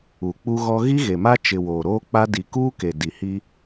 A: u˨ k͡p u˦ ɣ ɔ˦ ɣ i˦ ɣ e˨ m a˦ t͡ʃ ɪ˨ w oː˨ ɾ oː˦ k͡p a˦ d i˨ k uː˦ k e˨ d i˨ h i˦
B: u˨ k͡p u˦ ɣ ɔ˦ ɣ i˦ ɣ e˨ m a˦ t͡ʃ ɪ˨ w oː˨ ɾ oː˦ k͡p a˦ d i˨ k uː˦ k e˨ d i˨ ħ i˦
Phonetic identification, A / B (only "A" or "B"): A